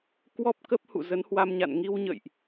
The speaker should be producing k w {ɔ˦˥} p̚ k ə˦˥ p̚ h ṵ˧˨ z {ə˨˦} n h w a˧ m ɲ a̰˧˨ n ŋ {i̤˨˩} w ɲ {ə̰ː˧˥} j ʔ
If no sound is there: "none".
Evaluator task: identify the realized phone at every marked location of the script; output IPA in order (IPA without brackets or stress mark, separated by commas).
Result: ɔ˦˥, ə˨˦, i˧, ə̰ː˧˨